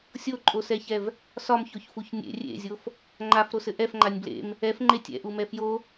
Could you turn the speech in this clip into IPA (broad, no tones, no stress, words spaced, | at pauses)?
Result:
sʲoǃʼosɛçɛv | sɒmçoçfuç nʲḛ rʲḛzʲof | ŋ͡ǃafɾosɘ ʔɛfŋ͡ǃanʲ blḛm | ɛfŋ͡ǃe tʲɛ̰ʔumɛ fjo